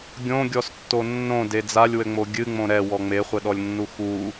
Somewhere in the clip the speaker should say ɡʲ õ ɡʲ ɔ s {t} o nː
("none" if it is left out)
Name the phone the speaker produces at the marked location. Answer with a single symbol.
tː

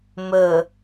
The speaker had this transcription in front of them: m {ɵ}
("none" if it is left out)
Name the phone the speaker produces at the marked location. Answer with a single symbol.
ɵ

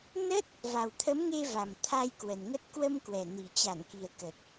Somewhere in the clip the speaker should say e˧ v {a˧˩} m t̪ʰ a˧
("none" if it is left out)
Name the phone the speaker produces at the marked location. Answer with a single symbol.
a˨˩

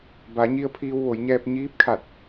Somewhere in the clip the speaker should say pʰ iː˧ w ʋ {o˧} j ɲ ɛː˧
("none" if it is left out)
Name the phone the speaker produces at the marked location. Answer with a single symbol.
o˩˧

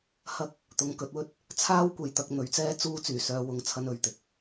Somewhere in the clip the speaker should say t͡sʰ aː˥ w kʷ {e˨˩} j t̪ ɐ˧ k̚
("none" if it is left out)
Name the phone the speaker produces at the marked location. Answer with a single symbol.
e˨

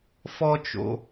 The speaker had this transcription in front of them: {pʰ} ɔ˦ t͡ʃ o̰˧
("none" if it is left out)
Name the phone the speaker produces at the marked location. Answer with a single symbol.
f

